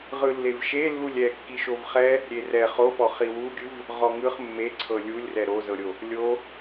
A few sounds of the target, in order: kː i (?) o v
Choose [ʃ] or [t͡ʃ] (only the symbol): ʃ